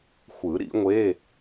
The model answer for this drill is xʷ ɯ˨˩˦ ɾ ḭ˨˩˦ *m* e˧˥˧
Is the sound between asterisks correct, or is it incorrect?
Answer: incorrect